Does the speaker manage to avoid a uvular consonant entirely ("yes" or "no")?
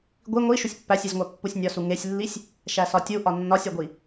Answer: yes